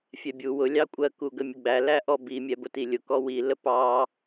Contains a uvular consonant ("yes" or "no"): no